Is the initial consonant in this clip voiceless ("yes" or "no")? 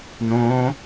no